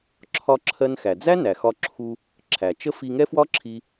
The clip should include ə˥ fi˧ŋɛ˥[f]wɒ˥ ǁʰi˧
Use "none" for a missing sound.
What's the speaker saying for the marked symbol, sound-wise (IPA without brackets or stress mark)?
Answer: f